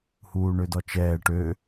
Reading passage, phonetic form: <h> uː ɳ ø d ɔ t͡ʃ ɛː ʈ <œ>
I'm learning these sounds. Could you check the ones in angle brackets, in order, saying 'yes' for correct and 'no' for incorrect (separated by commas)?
yes, no